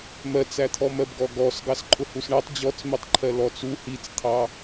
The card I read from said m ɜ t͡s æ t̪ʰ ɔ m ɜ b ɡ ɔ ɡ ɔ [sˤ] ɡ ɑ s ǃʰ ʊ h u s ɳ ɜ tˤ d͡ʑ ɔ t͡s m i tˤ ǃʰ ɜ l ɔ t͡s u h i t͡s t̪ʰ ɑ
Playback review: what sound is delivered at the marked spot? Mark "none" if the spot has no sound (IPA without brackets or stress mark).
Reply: s